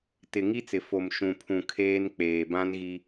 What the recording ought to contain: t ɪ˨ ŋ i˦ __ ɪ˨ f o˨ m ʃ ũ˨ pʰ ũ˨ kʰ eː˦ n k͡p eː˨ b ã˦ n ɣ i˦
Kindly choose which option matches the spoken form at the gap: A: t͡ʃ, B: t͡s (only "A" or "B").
B